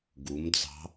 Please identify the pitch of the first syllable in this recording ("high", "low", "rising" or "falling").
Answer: rising